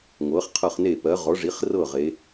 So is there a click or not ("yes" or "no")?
no